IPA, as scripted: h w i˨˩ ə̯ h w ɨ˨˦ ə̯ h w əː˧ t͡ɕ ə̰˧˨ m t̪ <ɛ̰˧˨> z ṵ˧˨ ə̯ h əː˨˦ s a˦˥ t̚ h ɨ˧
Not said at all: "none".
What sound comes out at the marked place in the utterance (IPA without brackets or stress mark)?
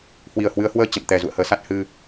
ɛ˨˩